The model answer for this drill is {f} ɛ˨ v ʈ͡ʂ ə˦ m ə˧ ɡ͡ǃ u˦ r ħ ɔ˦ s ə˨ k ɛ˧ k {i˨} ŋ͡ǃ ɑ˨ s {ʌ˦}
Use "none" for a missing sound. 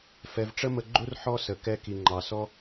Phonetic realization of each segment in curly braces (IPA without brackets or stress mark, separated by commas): f, i˨, ɔ˦